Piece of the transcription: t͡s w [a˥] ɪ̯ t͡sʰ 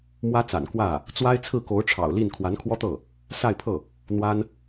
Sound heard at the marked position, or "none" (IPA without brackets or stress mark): a˥